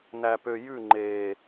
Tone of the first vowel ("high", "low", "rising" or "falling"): low